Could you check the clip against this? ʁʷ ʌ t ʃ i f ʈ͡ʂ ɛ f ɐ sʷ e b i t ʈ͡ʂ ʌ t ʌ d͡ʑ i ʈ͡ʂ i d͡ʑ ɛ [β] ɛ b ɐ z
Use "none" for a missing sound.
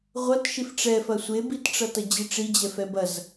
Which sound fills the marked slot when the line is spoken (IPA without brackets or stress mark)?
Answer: f